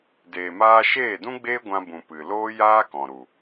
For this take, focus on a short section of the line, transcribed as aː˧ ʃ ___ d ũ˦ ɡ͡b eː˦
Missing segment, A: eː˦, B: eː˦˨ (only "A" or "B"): B